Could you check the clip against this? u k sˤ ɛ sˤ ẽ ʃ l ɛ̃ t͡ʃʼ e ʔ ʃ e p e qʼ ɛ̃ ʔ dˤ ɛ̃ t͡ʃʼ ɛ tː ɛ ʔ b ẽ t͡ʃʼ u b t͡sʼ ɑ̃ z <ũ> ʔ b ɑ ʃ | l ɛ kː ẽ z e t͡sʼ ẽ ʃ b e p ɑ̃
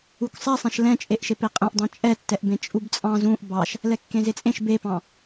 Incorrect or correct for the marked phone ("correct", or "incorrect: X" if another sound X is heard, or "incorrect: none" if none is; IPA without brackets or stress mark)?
correct